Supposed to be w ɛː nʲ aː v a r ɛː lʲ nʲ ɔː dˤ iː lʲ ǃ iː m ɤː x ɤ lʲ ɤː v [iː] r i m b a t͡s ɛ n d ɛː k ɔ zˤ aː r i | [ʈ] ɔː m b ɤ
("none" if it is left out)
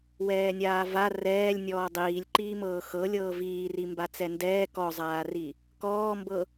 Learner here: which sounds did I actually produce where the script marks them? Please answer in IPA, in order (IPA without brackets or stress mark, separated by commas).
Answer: iː, k